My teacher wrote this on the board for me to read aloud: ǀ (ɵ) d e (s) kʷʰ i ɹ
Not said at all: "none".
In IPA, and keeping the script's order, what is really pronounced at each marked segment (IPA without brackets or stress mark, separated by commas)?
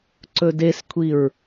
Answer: ɵ, s